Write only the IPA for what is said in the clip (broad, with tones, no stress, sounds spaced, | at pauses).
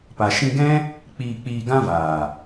p a˨ ʃ ĩ˧ ɡ ɛ̃˦ | k͡p iː˧ k͡p iː˧ ɡ ã˦ v aː˨